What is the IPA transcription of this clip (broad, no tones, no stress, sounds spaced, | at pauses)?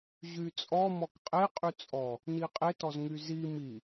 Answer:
ʑ y t͡sʼ ɔ m ɔ k qʼ e qʼ y t͡sʼ ɔ | n i qʼ e t ɔ z ŋ y z i m i